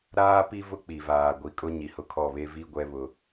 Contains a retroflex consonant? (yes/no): no